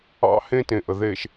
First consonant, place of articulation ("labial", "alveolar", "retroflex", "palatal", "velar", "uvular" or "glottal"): glottal